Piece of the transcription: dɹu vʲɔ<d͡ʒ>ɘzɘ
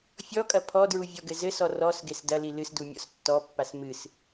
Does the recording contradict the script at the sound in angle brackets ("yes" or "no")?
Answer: yes